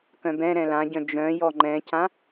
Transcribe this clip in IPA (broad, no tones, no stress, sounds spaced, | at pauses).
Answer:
k œ̃ b ɛ̃ ɾ ɛ̃ l ã ɟ œ̃ d͡ʒ œ̃ j ɔ ŋ͡ǃ ɛ̃ c ã